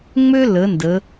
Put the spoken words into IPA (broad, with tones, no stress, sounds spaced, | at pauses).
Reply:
ŋ͡m ø˥ l ə˩˧ n d ə˩˧